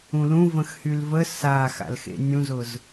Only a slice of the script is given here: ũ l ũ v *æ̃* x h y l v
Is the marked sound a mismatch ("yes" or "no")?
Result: yes